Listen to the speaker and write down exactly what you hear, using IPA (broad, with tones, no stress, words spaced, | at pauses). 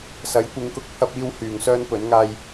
sɐ˨˥jkʷɪ˨˧ŋkʊ˧k̚ pʰɐ˥p̚iː˥w hyː˨ŋsœː˥npɵ˨˥nŋaː˥j